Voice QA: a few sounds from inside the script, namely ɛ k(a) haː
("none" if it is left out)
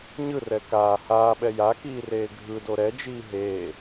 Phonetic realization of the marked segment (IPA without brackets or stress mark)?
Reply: aː